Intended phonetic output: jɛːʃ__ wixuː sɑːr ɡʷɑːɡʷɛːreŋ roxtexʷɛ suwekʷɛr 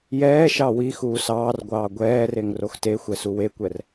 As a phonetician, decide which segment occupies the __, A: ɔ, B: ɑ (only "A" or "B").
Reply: B